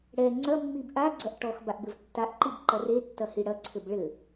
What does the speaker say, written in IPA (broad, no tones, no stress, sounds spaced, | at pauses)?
ɽ ɛ ŋ͡ǀ ɐ mː i b ʔ a ɡ͡ǀ ɐ ʔ ʈ ɔ x b a ʔ b ɘ v tː a ʔ ǃ i b ǃ ɐ r e tː ɐ h i ɽ ɐ ǀʰ ɘ b ɭ ɘ